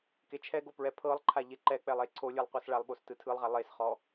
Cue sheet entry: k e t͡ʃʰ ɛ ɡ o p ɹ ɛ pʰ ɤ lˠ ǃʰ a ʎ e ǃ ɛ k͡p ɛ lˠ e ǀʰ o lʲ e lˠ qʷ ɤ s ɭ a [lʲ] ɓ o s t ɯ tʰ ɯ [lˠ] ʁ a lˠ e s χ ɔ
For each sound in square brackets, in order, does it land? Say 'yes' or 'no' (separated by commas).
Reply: no, yes